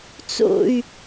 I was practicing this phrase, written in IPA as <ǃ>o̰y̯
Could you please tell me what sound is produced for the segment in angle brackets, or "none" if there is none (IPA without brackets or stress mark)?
t͡s